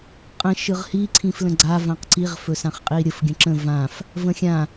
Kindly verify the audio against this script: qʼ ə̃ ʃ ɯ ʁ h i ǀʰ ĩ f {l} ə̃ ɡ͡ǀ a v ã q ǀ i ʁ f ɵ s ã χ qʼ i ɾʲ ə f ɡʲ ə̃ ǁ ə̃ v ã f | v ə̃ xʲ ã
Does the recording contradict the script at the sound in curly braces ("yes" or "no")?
no